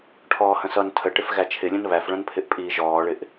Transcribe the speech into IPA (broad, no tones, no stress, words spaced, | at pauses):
ʈʰɔːhə̃sʌn tʰəʈɪf ɣæt͡ʃʰɪlʲə̃n βæfɭə̃npʰɪʔ pʼiːʒɔːɭɪʔ